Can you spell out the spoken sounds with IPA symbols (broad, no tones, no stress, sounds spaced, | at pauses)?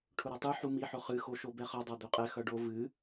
ʈʰ ʊ ɾ a tˤ ɨ ħ u m i ħ ʊ χ ɨ x o ʃ o b ɛ χ ʌ dˤ a d̪ ø qʼ ɛ x ʌ ɖ o v ɨ